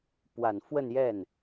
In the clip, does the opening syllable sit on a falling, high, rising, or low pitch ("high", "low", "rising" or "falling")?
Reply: low